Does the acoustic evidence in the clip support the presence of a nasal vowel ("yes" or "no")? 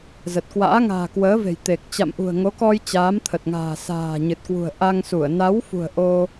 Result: no